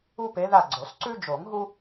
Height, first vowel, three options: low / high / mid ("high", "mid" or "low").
high